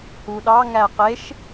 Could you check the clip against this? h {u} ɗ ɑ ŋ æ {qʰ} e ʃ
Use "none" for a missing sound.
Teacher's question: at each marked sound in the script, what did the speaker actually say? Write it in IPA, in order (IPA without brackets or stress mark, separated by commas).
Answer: u, q